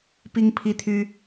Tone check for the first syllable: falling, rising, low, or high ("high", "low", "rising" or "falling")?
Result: high